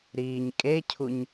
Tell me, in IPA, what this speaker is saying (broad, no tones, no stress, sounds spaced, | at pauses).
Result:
ɾ iː ɲ kʼ e cʰ u ɲ